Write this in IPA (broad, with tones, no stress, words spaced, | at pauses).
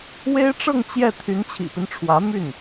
we˥ɪ̯ʈ͡ʂɤ˥˧ŋ t͡ɕjɛ˥˩ t̪ʰy˧˥nt͡ɕʰḭ˨˩pi˦nʈ͡ʂʰwä˧˥ my˥˩n